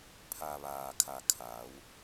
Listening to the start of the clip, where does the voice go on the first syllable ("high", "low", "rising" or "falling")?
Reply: low